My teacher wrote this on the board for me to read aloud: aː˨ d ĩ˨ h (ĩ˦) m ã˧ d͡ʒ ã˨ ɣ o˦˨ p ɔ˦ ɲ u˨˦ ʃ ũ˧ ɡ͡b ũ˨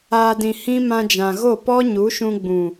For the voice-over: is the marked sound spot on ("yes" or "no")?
yes